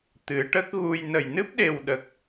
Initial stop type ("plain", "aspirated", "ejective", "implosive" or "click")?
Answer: plain